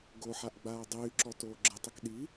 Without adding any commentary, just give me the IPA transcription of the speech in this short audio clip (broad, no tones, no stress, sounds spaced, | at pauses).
ɡ o ħ a ʔ ɡ͡b aː dˤ yː ǁ ɔ t oː ɡ͡ǁ ə tˤ ə k ɗ i